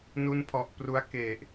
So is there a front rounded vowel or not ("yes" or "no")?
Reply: no